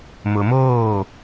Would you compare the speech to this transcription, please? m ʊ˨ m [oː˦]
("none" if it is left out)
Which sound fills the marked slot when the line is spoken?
oː˦˨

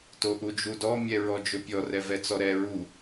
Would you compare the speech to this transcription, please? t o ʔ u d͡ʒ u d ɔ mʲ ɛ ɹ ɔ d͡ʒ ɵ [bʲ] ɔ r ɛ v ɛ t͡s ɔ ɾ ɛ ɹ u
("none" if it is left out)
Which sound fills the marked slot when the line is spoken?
pʲ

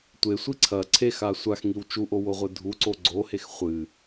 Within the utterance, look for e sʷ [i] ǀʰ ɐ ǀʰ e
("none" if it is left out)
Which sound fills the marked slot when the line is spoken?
i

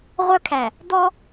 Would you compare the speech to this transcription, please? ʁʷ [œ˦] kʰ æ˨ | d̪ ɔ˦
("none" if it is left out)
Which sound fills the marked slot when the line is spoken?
œ˦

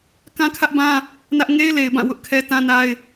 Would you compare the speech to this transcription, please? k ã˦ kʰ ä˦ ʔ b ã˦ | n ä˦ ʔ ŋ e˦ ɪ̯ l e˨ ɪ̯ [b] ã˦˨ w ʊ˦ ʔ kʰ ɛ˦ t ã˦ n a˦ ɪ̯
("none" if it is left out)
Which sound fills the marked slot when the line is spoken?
b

